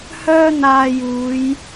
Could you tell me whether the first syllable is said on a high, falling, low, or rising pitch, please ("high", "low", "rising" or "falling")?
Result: high